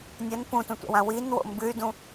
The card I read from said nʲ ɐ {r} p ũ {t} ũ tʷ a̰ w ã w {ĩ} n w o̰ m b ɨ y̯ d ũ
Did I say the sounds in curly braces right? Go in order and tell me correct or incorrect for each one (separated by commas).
incorrect, correct, incorrect